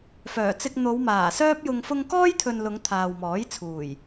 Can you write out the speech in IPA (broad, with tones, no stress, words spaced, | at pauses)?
fœː˨˩t͡sɪ˧k̚ n̪o˨˧wmaː˨˩sœː˥p̚jʊ˧ŋ fʊ˧ŋkɔː˥jt̪ʰɵ˨n lʊ˨˧ŋ t̪ʰaː˨wmɔː˨˥j t͡sʰuː˨˩j